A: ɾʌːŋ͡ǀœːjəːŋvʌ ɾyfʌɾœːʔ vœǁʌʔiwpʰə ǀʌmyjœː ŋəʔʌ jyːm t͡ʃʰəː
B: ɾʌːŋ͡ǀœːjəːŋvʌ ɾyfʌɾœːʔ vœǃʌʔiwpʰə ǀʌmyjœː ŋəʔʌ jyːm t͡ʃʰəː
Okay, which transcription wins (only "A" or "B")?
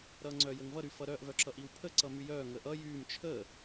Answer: A